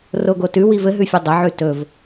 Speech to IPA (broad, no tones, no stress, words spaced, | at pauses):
roɡotʉ wivɘɦʉfʲɵ dˤɘʕʉ tɵv